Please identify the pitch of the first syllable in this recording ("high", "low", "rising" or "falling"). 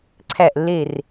falling